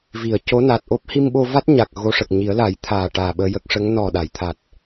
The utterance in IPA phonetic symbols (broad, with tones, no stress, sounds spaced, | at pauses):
v i˨˩˨ ə̯ c o˧˥ n a˨˩ t̚ ʔ o˦˥ p̚ h i˧ m ɓ o˧ v a˦˥ t̚ ɲ a˨˩ k̚ ɣ o˧ ʂ ə˨˩ k̚ ɲ i˨˩˦ ə̯ l a˨˩˦ j t̪ʰ aː˨˩ ʈ aː˨˩ ɓ əː˧ j ə˦˥ k̚ ʂ ə˧˥ ŋ n ɔ˨˩ ɗ a˨˩˨ j t̪ʰ a˨˩ t̚